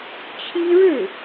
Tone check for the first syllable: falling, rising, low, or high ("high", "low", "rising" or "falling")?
high